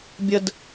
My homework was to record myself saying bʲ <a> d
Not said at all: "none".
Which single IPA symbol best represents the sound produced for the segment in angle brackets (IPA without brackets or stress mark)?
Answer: ə